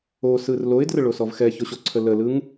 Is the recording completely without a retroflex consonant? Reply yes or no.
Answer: no